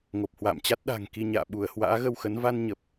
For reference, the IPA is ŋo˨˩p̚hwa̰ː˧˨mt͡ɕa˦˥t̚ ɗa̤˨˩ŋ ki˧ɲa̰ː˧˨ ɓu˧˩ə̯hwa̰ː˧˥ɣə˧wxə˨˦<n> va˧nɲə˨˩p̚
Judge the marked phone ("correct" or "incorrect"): correct